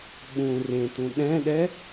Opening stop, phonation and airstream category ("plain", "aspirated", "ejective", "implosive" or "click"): implosive